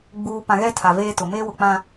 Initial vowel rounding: rounded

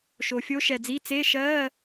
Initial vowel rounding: rounded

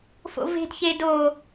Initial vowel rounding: rounded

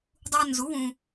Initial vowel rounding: rounded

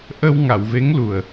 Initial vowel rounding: unrounded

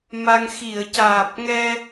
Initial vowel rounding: unrounded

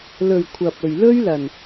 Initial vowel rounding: rounded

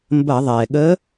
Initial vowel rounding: unrounded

